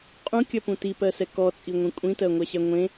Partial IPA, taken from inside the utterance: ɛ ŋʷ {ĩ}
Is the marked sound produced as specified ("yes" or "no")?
no